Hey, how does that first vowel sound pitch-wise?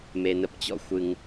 low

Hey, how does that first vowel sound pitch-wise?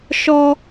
high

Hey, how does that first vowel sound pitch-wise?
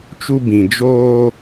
high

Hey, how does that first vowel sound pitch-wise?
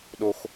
high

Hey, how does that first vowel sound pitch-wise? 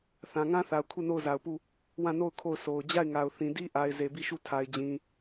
low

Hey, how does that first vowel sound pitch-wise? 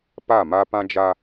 falling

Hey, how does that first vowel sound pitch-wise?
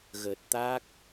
low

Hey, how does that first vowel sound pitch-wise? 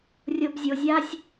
high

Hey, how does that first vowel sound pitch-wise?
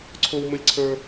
high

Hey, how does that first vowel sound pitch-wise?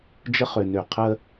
high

